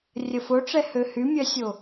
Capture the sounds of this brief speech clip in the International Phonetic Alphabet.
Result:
rʲəfoʈ͡ʂɛ høhymʲœsʲo

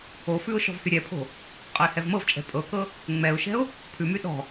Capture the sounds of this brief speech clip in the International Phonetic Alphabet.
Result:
ofʉʊ̯ ʃɔ̤vhyɾʲɛpʰo̤ | qʼɤɪ̯hɛvmɤvt͡ʃʼɛ̤ pʼɤkɤ | ŋ͡mɛʊ̯ʃɛ̤ʊ̯ | pʰʉmy ɗɔ̤

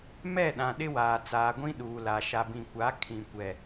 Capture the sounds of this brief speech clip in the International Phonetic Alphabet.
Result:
mɛ˦˨ɗã˨ ɗɪ˦waː˨ t͡saː˨ɡʷĩ˦ ɗuː˨la˨ ʃa˨bĩ˨kʷa˨˦ kʰĩ˨kʷɛ˨

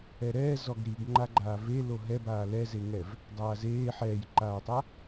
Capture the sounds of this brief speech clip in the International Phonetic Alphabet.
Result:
ɛɾɛː zɔɡɾiɡ ŋ͡ǃaɡ͡ǃaːve loɦɛbaː lɛzeŋɛv | dˤaːzeː ħɛːjǃaːtˤa

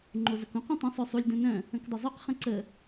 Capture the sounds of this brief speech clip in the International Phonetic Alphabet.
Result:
ŋ͡ǃozəkũq ɐ̃tˤə̃ sˤœsˤulʲ dœ̃nœ̃ | ə̃kdˤʏzˤœq χə̃ǀə

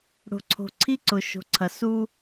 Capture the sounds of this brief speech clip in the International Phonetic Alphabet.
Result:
ɽo̤˨ǀʰo̤˨ǀʰi˦ǀʊ˨ ʃo̤˨ǀʰɐ˨ su˦

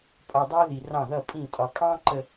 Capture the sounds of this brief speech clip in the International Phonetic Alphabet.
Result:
pʼɒ˨dˤɜ˦ ði˨rɑ̃˦˨ ðʌ˦˨pʼĩ˦˨ tʼɒ˨kʼɑ̃˦ ǃə˨

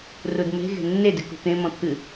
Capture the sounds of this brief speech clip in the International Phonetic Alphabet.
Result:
rudme̤ɣe̤ nːedɨ kṳt̪ẽ mɔ̃t̪ʰɨ

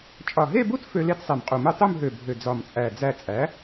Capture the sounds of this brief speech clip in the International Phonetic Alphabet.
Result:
t͡ʃʼɒ˨˩ɦe˥˧bu˥t fø˧ le˥˧tsˤe˨˩mqʼu˨˩mu˥˧ tˤu˥˧mɦø˨˩ bʱø˨˩d͡zɒ˨˩mt͡sʼæ˨˩ d͡zæ˨˩t͡sʼæ˩˧

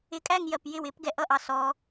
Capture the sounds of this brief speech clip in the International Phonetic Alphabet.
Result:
ɪkʼæŋjɜp jɪw ɪp ɡɛʔʌʔɑ sɔ

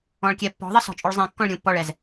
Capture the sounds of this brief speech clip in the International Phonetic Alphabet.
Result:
ɔ̃ɭkʲɛpːɔ̤ðˤə sɔ̤t͡ʃʼuɭzˤẽkːɔ̃ɭ ɾʲũpːɔɭɛz

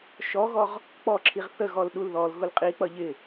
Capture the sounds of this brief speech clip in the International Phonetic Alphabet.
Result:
ʃɔɣɔʁ | k͡pɔǁʰiʁ θəɣɔl ɗulðɔlɣʊl qʼik͡pʌ ʎɪ

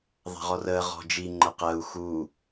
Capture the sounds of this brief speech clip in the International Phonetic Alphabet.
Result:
ðˤa̤ʁɔrəː ʁɔ̤d͡ʒi ŋ͡ǃəqəːu̯ xuː

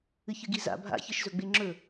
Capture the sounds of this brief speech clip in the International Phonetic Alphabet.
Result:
ɨçɨɡiza̰ bʱa̰çɨʃzɵɡ͡be ŋ͡ǁɵ

